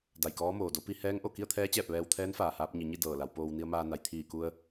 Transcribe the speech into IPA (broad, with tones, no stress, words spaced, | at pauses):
da˧˩jkɔː˧˥moː˩do˧˥ pi˧ hɛː˧˥ŋʔo˧˩ ki˥˨ə̯t̪ʰɛː˧˥t͡ɕɛː˧˩p̚ ʋɛː˧wt̪ʰɛː˧˥nfaː˩haː˧p̚ ɲi˩˧ɲi˥˨ dɤː˧˩la˩˧wpoː˧w ni˧ə̯maː˧na˩˧j t̪ʰiː˧˩ku˧ə̯